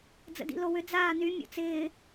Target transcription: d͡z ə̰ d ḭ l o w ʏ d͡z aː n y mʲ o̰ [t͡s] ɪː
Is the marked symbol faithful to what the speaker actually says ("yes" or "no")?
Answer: yes